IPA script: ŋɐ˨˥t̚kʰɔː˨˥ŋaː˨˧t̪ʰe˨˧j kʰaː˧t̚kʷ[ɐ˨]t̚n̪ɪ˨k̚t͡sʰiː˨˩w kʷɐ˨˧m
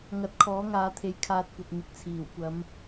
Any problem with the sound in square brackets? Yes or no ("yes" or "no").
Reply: no